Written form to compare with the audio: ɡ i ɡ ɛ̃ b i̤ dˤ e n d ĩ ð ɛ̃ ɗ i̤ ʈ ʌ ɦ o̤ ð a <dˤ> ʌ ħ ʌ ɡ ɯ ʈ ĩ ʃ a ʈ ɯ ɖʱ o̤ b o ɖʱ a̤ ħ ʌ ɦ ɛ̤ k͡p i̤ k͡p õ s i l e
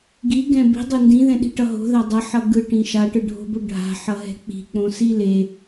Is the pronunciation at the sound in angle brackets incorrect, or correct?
correct